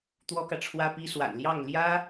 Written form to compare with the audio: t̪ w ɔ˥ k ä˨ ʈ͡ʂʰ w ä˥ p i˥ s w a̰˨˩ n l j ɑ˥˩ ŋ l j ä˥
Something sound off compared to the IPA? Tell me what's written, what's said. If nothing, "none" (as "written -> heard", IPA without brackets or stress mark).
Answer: none